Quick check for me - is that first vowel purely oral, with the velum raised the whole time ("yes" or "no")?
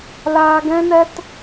yes